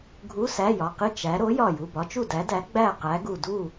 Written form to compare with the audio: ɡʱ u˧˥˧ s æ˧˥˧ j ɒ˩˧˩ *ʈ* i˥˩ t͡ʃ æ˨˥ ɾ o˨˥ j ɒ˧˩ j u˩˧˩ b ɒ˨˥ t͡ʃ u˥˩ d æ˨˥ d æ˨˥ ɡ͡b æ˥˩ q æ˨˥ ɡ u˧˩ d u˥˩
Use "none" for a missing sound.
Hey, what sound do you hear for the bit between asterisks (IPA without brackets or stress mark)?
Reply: q